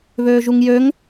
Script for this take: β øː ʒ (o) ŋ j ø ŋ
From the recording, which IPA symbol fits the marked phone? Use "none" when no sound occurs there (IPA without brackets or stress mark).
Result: u